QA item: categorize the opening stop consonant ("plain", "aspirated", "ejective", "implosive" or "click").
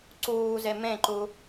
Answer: click